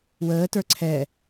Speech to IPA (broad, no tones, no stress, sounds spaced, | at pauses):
w əː t ə˞ ǀʰ ɛ